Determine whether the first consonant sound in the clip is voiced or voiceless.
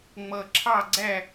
voiced